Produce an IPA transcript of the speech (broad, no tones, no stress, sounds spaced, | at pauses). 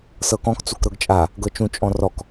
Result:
s ɤ k ɔ̃ k t͡s u k ɾ ɤ ɡ t͡ʃʼ a | ɡ ɤ t͡ʃ ũ t͡ʃʼ ɔ̃ r ɔ k